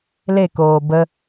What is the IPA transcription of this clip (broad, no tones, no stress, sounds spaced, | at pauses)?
l e k oː b ə